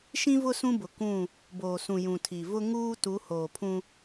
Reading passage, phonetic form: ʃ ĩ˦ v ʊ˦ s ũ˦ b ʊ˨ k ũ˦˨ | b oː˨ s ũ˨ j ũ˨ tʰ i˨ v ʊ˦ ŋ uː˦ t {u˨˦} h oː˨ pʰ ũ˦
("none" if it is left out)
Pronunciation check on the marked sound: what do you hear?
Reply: u˨˦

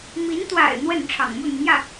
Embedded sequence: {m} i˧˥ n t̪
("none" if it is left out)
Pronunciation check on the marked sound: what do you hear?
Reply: m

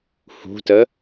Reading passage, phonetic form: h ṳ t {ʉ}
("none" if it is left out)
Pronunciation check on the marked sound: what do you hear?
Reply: ə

